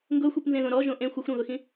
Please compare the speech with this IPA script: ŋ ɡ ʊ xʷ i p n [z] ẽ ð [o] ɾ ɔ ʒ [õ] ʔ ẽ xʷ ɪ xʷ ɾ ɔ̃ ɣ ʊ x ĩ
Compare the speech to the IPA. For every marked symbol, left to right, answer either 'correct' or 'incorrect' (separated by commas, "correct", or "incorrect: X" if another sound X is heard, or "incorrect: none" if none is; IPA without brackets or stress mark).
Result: correct, incorrect: õ, correct